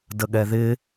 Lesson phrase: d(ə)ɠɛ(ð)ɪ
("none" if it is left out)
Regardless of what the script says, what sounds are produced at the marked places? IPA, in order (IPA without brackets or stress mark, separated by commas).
ə, ð